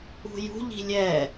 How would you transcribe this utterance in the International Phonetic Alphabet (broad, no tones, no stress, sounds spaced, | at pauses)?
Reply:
ṳ j ṳ ʎ i̤ lʲ ɛ